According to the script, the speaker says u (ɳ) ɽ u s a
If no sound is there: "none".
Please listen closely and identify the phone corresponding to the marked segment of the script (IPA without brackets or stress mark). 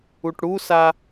ʈ